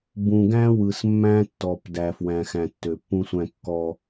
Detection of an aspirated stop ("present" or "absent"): absent